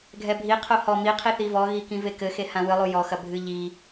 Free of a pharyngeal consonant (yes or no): yes